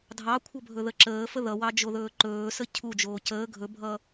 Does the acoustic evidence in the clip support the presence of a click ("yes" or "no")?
yes